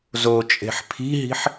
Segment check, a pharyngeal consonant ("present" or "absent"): present